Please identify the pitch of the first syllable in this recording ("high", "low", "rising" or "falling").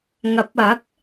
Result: rising